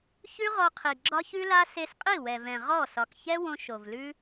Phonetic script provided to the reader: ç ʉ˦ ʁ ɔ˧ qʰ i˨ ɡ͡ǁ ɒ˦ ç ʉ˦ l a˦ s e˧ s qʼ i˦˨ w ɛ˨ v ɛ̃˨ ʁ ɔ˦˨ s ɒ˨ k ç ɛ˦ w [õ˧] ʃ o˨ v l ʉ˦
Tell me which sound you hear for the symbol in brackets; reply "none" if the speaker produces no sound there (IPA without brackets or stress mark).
õ˧